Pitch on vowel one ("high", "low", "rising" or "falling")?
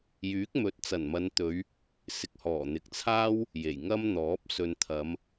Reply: rising